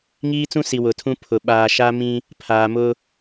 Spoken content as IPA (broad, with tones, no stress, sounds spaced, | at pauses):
ŋ iː˦ t͡s ũ˦ s i˨ w ʊ˨ tʰ ũ˦ pʰ ʊ˨ ɓ aː˨ ʃ a˦ m ĩ˦ | pʰ aː˨ m ʊ˦